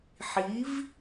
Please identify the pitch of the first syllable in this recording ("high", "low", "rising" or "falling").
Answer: rising